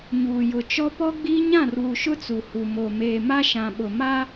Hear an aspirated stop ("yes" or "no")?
no